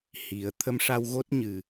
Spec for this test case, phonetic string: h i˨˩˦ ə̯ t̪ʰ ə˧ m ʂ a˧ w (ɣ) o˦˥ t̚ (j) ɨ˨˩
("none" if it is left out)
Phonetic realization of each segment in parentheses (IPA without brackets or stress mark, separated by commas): ɣ, ɲ